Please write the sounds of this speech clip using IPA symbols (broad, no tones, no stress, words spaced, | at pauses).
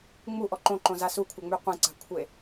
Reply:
ŋ͡muʔɔ ǃõǃõza sukʷʰœŋ͡my qʷẽǀa̤kʷʰe